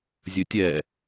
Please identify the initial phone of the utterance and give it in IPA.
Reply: zʲ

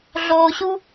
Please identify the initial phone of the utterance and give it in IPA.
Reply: ɮ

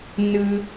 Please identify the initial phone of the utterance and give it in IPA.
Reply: n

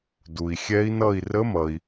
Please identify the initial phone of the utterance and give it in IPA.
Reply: d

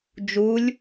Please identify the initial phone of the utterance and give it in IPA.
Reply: d͡ʒ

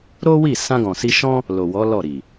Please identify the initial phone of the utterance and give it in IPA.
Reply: ɾ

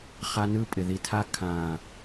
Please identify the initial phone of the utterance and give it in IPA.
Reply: χ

